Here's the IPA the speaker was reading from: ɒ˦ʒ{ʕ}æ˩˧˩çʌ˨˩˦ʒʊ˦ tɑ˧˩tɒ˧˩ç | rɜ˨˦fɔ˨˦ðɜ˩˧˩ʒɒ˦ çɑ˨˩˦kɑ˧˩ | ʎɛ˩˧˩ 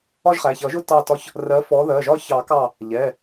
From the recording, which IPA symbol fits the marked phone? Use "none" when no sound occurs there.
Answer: χ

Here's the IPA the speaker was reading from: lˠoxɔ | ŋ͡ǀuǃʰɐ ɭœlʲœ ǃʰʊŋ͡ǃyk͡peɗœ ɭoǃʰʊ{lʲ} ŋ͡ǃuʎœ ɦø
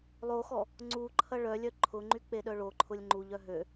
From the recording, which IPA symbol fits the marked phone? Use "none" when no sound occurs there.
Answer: lʲ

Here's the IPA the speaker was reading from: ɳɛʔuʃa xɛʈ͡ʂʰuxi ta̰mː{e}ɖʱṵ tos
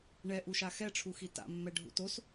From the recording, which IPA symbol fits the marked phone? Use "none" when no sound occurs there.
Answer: ɛ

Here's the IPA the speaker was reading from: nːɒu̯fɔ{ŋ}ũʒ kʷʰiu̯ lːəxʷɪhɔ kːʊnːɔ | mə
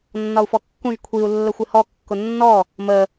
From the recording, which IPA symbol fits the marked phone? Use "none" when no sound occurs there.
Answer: kː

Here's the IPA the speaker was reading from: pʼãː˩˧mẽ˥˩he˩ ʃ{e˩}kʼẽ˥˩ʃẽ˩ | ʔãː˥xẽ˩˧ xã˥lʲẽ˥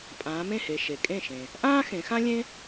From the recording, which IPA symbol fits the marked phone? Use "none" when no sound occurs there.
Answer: e˩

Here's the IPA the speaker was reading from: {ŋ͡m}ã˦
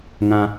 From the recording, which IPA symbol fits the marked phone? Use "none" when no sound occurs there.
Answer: ŋ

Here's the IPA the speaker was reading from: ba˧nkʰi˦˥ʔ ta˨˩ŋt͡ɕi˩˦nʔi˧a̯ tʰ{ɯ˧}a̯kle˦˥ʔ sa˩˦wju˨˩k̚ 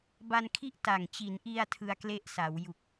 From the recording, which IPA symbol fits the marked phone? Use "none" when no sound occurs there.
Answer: ɯ˧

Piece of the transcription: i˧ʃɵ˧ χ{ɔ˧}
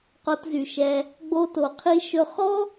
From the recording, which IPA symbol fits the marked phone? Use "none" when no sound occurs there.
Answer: ɔ˦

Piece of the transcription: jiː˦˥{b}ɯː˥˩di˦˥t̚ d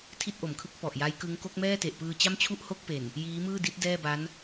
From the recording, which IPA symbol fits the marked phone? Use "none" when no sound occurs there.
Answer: m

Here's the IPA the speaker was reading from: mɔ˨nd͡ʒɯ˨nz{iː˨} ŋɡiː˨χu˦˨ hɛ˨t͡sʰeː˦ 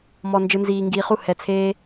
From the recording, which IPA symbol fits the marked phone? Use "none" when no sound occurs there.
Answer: iː˨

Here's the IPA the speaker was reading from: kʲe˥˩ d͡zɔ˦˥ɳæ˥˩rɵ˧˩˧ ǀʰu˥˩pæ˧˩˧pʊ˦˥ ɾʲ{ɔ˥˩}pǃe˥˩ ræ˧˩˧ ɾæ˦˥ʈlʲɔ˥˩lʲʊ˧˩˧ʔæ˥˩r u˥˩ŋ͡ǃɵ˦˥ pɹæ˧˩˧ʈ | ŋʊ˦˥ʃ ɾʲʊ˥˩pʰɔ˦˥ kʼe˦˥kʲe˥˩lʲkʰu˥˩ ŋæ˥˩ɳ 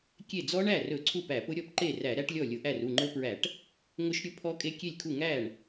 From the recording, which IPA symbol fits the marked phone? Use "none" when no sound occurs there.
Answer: ɔ˥˩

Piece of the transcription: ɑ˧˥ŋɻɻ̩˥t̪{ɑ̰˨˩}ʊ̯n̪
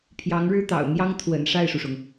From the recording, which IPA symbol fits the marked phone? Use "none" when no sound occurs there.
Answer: ɑ̰˨˩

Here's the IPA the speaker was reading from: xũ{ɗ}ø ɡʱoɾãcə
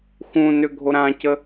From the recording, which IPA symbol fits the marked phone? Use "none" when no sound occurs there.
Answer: n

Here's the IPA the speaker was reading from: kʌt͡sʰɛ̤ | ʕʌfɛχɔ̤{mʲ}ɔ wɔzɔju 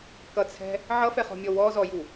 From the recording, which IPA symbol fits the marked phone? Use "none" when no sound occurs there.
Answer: mʲ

